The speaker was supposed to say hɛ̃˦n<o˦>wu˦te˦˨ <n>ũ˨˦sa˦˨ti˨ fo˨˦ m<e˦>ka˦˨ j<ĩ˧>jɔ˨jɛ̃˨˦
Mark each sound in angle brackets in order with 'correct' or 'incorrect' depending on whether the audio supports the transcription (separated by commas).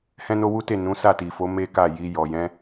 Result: correct, correct, correct, incorrect